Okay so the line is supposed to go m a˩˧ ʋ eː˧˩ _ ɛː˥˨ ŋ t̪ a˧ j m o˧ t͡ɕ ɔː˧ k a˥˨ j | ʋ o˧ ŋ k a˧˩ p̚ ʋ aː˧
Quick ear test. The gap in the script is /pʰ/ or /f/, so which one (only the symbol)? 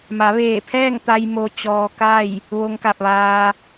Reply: pʰ